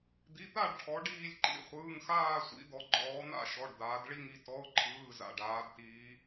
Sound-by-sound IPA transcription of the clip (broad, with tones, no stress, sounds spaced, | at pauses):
d̪ i˩˧˩ t̪ a˦˨ ɖ ʈʰ ɔ˩˧ ɖ iː˦˨ lʲ ǃ ḭ˩˧˩ χʷ ɯː˩˧˩ ŋ x aː˦˨ sʷ ḭ˩˧ d̪ ɔ˩˧ ɡ͡ǃ ɔː˩˧ n̪ a̰˦˨ ʃ ɔ˩˧˩ ɖ d̪ aː˩˧ d ɭ i˦˨ ŋ i˩˧ t ɔ˩˧˩ ʊ̯ ǃʰ ɯː˩˧˩ z a̰˩˧˩ ɖ aː˩˧ d t iː˩˧